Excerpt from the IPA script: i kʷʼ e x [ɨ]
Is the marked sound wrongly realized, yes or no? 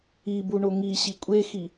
yes